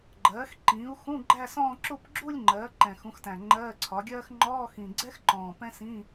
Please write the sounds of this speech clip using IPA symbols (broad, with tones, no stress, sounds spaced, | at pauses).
ɡ͡ǃ ɜː˩˥ x ǃ ĩː˩˥ u̯ x ũ˧˥˧ ɡ͡ǃ æ˥˧ s ɔ̃ː˥˧ ǁ u˥˧ p ɡ͡ǁ u˥˧ lʲ ŋ͡ǃ ɜː˩˥ ǃ ɛ̃˨˩ x ũ˩˥ x t æ̃˨˩ ŋ͡ǃ ɜː˧˥˧ ǀʰ ɒ˩˥ ɡʲ ɜː˥ x ŋ͡ǃ ɔː˧˥˧ x ĩ˨˩ ɡ͡ǀ ɛ˥ x ǃ ɔ̃ː˨˩ p ɛ̃˥ s ĩː˧˥˧